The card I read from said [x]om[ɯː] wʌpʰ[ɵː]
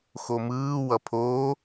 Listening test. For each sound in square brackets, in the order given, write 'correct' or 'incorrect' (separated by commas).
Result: correct, correct, incorrect